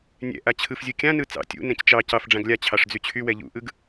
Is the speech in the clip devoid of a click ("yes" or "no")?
yes